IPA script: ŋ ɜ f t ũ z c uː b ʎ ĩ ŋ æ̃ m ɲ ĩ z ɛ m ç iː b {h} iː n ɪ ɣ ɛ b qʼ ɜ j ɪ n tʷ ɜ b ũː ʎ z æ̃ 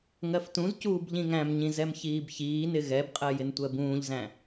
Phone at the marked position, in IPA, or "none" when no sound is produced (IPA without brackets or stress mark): ç